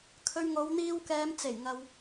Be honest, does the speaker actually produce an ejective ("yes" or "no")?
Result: no